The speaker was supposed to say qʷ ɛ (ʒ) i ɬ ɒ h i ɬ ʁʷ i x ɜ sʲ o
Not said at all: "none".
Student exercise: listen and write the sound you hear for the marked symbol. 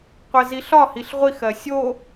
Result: z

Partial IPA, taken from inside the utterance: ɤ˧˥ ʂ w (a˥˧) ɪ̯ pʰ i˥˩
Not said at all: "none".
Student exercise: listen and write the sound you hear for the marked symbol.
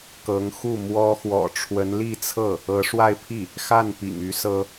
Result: a˥˧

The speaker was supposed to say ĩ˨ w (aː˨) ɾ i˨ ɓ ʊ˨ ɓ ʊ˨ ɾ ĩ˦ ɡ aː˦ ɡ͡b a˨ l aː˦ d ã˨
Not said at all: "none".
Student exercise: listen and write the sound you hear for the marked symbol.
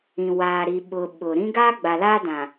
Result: aː˨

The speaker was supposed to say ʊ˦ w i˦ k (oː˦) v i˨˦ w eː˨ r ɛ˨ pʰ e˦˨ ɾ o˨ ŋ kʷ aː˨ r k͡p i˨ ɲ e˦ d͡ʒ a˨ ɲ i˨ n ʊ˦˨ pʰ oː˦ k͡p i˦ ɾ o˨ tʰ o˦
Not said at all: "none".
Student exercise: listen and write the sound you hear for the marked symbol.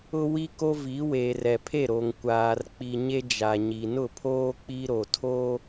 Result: o˦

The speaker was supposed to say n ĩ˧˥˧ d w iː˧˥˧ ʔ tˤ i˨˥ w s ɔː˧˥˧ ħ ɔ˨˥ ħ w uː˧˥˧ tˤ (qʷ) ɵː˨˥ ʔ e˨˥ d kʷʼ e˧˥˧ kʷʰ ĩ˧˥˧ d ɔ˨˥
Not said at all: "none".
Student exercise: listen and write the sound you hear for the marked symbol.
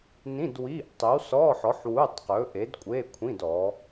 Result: q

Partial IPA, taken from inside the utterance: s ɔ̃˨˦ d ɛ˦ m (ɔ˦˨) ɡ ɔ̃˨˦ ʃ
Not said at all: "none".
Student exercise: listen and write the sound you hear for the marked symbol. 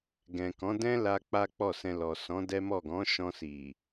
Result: ɔ˦˨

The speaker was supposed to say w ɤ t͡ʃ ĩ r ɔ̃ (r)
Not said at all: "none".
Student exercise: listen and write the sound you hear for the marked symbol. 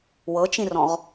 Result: ʁ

